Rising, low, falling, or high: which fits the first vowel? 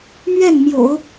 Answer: falling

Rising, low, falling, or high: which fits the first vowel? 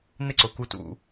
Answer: high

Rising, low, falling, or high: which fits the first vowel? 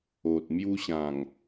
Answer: low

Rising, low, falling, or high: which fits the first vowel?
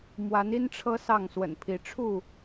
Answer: rising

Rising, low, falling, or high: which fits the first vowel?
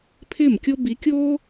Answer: falling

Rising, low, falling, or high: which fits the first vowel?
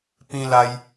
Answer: high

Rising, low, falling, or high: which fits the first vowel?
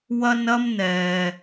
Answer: high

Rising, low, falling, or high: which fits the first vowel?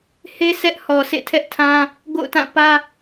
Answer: high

